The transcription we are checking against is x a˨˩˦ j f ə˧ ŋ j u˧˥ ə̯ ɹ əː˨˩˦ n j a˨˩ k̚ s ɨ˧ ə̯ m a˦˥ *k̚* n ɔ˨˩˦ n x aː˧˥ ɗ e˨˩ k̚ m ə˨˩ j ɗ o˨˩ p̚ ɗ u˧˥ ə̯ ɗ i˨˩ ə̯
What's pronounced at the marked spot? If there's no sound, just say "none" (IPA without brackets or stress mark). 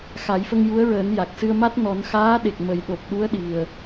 t̚